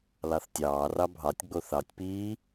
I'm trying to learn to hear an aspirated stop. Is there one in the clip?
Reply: no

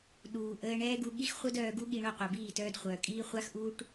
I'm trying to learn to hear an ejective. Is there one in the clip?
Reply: yes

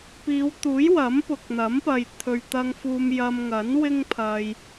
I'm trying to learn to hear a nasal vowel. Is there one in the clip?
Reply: no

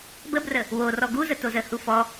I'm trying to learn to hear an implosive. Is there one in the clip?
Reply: no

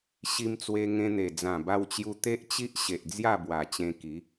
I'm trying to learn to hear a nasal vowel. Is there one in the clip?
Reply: yes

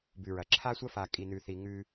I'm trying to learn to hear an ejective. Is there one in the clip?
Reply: yes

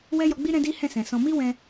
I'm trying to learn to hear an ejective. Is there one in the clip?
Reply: no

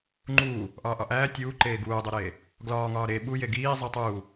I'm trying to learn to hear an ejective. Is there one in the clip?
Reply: no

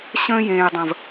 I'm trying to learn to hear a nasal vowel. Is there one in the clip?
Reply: yes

